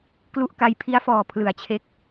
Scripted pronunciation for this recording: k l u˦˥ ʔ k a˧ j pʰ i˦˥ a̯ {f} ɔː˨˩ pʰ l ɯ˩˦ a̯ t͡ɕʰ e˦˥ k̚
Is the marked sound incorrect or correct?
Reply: correct